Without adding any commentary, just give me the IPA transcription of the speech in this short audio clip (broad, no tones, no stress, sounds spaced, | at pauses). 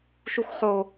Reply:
ʃ u x χ o